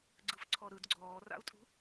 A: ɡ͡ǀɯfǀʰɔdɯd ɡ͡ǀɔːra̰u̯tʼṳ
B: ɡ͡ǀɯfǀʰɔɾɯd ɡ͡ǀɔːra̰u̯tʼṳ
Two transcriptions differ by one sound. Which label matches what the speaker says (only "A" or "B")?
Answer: B